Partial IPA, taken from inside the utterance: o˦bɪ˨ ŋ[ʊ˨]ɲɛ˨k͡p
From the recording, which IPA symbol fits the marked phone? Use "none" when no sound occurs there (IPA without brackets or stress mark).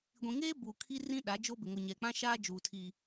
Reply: ʊ˨